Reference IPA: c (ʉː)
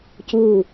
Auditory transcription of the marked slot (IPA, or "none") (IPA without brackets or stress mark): uː